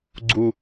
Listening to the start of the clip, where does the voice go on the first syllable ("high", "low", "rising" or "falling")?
low